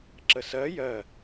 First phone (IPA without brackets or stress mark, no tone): ǁ